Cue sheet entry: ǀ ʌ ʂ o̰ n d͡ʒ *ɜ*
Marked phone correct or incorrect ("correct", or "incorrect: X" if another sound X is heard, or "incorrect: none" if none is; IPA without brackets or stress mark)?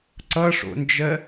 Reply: correct